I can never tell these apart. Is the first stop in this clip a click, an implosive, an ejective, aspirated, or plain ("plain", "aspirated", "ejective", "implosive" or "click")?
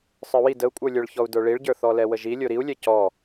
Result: plain